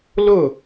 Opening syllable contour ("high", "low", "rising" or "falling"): falling